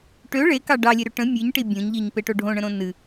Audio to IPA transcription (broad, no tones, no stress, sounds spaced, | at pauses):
ʈ ø ɭ e k ɑ ɖ ɑ lʲ e ɾ ø ʈ ə̃ mʲ ɨ ɲ ʈ i bʲ õ ɲ ʎ i ɲ p e ʈ o ɖʱ õ ɳ ə̃ ɾ õ n ɨ